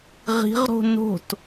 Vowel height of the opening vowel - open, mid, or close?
close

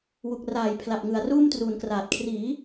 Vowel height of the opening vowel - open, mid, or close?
close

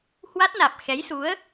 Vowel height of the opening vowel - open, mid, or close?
open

